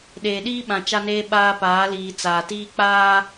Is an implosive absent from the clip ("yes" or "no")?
no